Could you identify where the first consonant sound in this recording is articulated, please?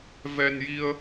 labial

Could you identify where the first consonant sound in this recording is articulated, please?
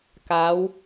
velar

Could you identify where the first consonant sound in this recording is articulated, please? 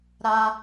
alveolar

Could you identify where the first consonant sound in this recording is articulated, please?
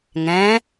velar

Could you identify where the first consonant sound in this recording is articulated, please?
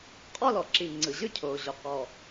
uvular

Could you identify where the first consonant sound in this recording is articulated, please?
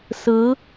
alveolar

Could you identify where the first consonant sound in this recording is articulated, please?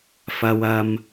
labial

